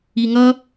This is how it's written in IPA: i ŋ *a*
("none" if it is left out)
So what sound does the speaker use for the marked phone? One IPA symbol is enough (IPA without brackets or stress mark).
ʌ